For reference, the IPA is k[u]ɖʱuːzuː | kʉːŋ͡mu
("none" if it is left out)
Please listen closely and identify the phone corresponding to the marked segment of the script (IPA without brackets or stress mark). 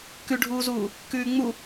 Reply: ʉ